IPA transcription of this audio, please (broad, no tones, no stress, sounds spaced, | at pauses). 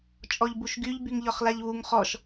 t͡ʃʼ ɔ ʎ b u ʃ ɡ y ʎ b y ŋ ʎ ɒ χ l a ʎ β u ŋ χ ɔ ʃ